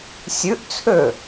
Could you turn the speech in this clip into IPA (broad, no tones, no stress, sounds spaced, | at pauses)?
sʲ ʉ ʔ t͡sʰ ø